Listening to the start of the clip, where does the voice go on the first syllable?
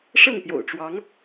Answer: falling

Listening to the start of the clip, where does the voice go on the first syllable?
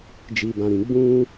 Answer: low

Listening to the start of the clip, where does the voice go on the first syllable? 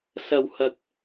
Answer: low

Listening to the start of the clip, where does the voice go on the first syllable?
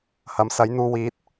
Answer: rising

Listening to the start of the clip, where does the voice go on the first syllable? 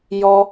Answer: high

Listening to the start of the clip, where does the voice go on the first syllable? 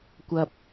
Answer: low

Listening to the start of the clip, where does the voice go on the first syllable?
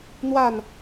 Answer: falling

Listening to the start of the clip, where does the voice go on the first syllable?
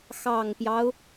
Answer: low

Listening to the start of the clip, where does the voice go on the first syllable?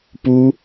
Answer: high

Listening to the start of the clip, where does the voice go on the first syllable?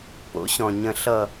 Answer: rising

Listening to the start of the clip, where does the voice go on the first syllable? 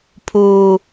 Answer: low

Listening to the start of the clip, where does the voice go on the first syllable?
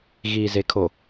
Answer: low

